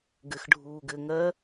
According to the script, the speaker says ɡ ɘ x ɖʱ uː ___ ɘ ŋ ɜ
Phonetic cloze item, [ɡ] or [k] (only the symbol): ɡ